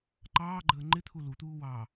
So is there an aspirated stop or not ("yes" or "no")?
yes